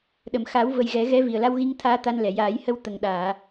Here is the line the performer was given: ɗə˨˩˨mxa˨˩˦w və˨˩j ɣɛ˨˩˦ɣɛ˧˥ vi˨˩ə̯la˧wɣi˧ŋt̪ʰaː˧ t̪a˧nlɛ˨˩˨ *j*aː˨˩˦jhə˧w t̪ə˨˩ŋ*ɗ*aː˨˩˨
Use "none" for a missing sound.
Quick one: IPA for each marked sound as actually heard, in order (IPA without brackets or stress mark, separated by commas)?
j, ɗ